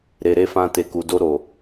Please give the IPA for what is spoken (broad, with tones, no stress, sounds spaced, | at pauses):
ɾ e˨ ɾ e˧ f ã˧ t e˨ k u˨ d o˧ ɾ o˨